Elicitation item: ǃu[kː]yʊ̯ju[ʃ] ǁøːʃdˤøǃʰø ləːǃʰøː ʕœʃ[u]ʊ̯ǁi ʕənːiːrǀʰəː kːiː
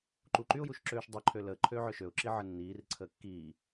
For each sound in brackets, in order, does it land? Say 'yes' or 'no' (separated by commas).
no, yes, no